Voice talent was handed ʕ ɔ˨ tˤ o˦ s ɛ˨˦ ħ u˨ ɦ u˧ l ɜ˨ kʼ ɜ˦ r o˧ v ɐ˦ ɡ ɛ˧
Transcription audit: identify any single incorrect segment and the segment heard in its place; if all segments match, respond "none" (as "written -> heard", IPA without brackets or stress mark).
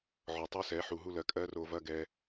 none